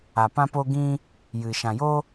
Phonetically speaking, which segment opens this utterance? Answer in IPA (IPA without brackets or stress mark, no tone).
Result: a